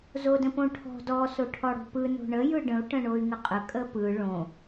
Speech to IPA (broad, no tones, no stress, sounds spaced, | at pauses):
z o d ə̃ p õ ʈʰ ɔ̤ d ɔ s o ʈʰ ɔ ɽ o̤ p ɯ n o̤ ɳ ə j ɯ ɖ ə̃ u̯ ʈ ə̃ ɳ o y̯ ŋ ə qʼ ə kʼ ə p ɯ ɭ õ